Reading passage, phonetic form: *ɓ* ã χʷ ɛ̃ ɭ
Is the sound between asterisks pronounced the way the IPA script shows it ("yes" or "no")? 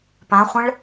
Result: no